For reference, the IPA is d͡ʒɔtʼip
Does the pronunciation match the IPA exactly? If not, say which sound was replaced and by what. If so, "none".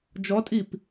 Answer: none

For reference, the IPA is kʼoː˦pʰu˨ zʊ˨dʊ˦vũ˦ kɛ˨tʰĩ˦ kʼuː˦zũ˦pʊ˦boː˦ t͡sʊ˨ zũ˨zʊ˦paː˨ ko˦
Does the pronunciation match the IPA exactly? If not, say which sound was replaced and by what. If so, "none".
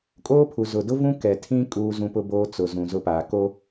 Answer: none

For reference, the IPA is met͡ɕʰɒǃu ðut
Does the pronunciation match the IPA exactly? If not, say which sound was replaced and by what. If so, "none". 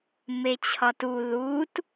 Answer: ǃ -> t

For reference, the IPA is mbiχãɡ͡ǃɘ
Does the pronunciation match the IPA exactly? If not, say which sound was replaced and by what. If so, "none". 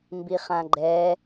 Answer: ɘ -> ɛ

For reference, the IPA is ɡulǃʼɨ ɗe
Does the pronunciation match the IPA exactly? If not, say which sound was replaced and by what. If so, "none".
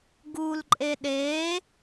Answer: ɨ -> e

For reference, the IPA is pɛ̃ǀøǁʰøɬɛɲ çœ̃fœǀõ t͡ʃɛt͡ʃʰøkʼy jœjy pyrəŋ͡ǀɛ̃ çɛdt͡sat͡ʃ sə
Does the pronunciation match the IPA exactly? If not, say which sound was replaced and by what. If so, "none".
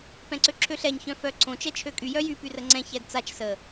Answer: none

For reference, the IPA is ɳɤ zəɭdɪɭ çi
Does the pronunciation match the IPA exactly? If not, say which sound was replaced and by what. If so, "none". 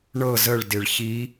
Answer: none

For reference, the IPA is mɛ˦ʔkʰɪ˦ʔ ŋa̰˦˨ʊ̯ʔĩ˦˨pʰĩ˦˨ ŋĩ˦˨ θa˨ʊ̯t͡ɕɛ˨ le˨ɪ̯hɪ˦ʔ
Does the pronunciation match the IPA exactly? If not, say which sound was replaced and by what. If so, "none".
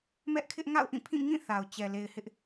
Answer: none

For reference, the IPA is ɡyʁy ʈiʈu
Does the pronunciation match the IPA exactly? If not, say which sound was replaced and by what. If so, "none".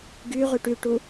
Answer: i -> y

